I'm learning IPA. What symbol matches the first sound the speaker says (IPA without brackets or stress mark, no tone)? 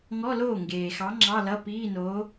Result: ŋ